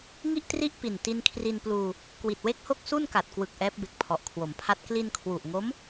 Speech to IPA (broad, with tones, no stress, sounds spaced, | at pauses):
ŋ i˥˩ ʔ t r i˥˩ ʔ p i˨˩ n t i˧ n kʰ r i˧ n p l uː˧ | k w i˨˩ t̚ w e˥˩ k̚ h o˥˩ k̚ s u˥˩ n k a˨˩ t̚ k w ɯ˨˩ k̚ ʔ ɛː˦˥ p̚ b e˨˩ k̚ pʰ ɔ˨˩ ʔ kʰ w o˩˦ m pʰ a˦˥ t̚ k l i˧ n kʰ w u˨˩ ʔ ŋ o˦˥ m